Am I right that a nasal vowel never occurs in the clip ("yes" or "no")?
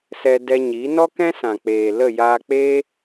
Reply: no